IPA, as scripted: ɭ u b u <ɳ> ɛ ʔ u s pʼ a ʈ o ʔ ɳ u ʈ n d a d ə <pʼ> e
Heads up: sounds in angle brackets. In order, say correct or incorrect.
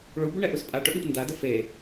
correct, incorrect: f

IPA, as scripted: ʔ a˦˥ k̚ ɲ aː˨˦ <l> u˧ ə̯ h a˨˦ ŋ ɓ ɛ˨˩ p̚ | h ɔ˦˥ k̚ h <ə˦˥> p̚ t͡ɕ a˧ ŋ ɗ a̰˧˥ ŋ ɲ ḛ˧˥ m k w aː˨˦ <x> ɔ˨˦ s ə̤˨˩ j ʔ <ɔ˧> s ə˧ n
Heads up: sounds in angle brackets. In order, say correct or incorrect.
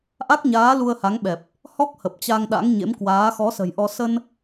correct, incorrect: ə˨˩, correct, correct

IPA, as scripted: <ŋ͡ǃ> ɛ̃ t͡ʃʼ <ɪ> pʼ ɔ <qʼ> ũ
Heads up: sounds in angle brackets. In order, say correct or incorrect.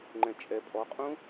correct, incorrect: ɛ, correct

